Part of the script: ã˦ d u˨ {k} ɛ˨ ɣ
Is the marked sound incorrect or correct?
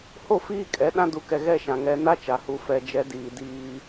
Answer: correct